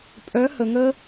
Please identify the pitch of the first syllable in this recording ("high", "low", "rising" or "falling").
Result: rising